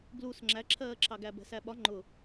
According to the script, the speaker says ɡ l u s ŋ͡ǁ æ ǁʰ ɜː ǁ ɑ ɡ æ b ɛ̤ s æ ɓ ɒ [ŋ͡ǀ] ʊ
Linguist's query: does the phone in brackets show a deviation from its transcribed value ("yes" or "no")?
yes